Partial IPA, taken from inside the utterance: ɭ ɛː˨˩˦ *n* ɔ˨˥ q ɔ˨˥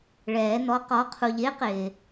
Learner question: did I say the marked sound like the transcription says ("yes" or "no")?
yes